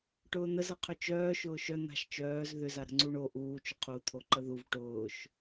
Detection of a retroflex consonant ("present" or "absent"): present